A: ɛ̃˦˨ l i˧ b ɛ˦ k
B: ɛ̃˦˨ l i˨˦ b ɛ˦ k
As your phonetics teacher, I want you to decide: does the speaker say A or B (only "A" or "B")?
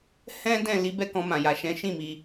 B